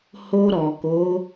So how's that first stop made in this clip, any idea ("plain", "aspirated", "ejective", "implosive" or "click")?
plain